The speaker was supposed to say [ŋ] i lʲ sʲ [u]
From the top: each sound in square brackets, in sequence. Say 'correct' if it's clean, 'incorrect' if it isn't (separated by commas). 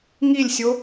correct, incorrect